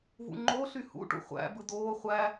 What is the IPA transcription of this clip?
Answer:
v ṵ ŋ͡ǃ o ɬ y h ṵ ʈ ṵ χʷ æ̰ b ɯ d oː χʷ æ

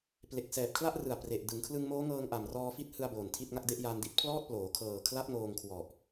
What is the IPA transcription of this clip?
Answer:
p l e˨˩ k̚ s ɛː˨˩ p̚ kʰ l a˥˩ ʔ r ɯ˨˩ a̯ p r e˨˩ ʔ d ɯ˩˦ ŋ kʰ l ɯ˧ ŋ m oː˦˥ ŋ ɤː˧ ŋ ʔ a˨˩ m r ɔː˧ f i˦˥ t̚ h ɯ˧ a̯ b oː˨˩ n tʰ i˥˩ t̚ ŋ a˥˩ k̚ d e˥˩ ʔ j a˧ n d i˦˥ t̚ pʰ l ɔː˥˩ t̚ p l oː˩˦ kʰ ɤː˨˩ kʰ l a˦˥ p̚ ŋ oː˧ ŋ kʰ w ɔ˨˩ ʔ

